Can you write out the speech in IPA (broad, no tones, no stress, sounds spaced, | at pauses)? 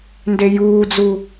n d e j uː d͡z u